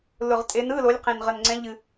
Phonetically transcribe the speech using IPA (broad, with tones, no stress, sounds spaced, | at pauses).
l ʊ˨˩ ʁ tʼ e˨˦ n ɯ˧˥˧ l o˨˦ lʲ q ẽ˨˩ n ʁ ə˨˩ n ŋ͡ǀ ɛ̃˨˦ ʎ ɨ˨˩